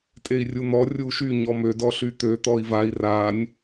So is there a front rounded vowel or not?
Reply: yes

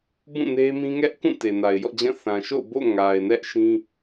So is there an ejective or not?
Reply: no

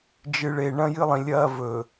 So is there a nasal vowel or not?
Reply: yes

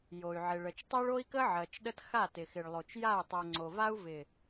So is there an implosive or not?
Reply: yes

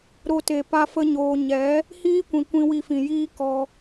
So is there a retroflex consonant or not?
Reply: no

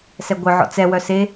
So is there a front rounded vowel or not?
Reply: yes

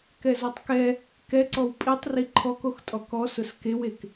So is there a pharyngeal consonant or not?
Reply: no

